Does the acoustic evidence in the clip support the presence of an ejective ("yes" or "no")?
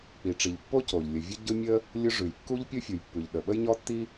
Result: no